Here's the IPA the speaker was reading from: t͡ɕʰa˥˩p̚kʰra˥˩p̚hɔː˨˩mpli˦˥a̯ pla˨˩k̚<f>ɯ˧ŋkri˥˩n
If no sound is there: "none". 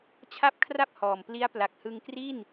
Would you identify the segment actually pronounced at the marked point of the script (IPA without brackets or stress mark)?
h